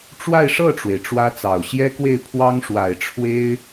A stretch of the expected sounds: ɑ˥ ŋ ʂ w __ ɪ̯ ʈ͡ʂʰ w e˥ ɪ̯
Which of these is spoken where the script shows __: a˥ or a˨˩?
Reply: a˨˩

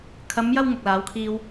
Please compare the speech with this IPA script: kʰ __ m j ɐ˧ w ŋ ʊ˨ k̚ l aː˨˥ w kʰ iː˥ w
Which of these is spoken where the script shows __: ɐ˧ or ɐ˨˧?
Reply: ɐ˨˧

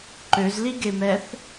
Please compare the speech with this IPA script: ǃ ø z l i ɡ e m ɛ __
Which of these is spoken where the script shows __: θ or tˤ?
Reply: θ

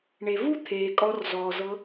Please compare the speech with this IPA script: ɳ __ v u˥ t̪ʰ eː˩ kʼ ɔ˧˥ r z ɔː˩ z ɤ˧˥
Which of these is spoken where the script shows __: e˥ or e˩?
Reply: e˩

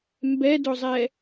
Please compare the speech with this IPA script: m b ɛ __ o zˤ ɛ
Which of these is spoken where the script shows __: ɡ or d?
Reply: d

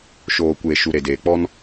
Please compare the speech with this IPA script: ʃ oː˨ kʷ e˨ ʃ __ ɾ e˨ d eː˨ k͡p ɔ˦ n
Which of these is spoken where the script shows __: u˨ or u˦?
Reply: u˨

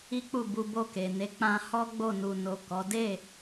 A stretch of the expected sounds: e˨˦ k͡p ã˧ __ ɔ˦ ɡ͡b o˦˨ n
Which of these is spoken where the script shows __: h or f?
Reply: h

